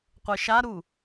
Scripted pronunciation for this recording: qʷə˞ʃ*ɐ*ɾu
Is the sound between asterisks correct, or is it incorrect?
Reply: incorrect